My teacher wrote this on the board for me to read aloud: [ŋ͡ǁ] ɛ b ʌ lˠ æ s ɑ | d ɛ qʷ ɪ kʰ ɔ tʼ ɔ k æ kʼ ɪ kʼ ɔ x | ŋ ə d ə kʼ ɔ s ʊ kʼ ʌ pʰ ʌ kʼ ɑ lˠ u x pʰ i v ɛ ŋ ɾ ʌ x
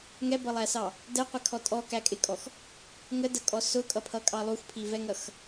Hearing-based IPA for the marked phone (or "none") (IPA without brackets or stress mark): ŋ